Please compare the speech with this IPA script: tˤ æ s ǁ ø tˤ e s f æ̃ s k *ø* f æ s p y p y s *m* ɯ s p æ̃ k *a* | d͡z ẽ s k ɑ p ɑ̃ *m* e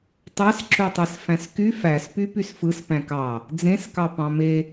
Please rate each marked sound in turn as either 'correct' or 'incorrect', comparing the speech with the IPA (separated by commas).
incorrect, incorrect, incorrect, correct